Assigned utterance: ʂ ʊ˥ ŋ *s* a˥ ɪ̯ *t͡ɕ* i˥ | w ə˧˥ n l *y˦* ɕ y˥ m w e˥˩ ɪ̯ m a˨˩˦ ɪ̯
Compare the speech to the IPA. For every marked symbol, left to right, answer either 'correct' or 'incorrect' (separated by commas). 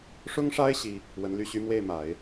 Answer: incorrect, incorrect, incorrect